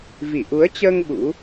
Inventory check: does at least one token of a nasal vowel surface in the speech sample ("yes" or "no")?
no